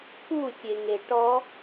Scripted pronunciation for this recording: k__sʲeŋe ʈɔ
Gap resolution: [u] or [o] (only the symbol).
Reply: u